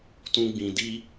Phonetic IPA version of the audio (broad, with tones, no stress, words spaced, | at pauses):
tũ˦ɡ͡bĩ˧ di˦